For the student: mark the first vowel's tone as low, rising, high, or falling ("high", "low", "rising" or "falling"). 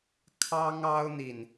high